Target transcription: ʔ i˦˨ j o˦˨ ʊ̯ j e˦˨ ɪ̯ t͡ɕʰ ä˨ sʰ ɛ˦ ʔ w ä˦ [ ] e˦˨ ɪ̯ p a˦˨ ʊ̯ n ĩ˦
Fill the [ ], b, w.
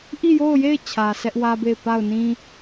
b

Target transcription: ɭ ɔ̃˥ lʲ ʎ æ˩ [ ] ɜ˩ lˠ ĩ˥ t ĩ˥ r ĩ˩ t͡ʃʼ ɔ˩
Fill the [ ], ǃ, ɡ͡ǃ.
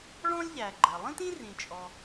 ɡ͡ǃ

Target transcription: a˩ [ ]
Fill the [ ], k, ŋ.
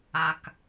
k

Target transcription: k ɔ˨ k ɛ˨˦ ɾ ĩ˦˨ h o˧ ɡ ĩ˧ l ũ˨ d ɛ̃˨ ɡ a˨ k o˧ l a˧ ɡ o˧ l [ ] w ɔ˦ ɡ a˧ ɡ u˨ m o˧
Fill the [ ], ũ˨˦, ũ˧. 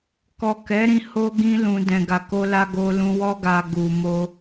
ũ˧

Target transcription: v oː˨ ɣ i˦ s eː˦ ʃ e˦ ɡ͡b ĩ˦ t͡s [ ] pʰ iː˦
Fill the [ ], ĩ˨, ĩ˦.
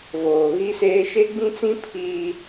ĩ˦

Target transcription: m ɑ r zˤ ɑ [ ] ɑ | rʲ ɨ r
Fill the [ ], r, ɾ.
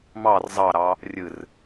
ɾ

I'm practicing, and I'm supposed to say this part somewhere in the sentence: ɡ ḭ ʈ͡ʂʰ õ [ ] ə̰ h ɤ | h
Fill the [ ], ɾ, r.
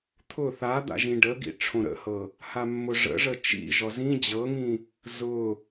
ɾ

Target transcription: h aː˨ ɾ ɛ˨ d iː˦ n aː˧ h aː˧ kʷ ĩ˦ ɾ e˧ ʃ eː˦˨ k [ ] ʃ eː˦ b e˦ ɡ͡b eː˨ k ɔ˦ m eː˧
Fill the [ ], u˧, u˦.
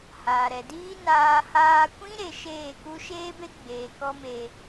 u˦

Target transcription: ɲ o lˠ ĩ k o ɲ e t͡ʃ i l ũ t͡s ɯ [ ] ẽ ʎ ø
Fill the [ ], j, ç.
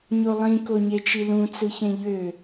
ç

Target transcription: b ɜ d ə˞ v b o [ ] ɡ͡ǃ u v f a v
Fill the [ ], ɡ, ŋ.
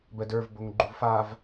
ŋ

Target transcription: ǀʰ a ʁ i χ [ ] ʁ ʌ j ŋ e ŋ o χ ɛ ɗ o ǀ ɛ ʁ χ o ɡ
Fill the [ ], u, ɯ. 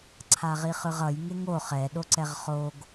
ɯ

